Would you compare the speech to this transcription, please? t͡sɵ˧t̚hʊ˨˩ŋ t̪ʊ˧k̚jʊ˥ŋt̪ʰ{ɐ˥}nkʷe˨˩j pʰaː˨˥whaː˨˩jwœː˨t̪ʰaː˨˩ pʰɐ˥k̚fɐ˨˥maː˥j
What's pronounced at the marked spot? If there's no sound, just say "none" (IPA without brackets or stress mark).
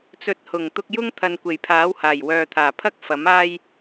ɐ˨